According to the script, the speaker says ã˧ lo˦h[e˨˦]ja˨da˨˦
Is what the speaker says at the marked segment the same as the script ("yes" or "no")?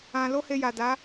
no